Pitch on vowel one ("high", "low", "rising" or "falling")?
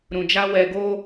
low